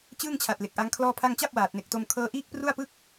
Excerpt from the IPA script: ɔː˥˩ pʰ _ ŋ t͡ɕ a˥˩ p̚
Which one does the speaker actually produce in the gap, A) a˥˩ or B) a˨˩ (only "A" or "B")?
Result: A